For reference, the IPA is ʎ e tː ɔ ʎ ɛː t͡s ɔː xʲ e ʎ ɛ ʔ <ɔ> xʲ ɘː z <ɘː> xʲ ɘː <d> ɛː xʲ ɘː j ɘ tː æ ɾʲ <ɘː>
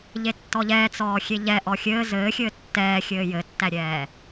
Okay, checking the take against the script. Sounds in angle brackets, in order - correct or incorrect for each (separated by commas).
correct, correct, incorrect, incorrect